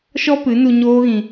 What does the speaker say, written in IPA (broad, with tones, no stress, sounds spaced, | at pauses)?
ʃ ɔ˦ p ɨ˨˦ n u˧ ɲ oː˦ ɣ ĩ˧